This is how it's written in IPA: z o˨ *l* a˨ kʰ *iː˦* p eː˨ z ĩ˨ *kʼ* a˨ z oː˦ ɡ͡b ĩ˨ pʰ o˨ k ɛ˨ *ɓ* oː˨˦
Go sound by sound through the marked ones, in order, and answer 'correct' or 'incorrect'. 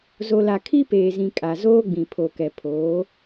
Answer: correct, incorrect: i˦, correct, incorrect: pʰ

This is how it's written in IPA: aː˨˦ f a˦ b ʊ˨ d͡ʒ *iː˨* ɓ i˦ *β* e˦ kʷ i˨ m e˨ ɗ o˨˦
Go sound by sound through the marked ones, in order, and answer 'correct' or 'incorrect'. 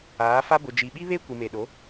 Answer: incorrect: i˨, correct

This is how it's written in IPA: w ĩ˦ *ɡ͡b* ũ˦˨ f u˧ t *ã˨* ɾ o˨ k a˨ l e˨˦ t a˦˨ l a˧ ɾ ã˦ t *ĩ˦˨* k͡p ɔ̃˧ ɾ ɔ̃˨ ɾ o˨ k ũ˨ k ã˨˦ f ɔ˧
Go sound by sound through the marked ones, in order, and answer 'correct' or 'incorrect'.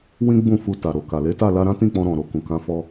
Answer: correct, incorrect: a˨, correct

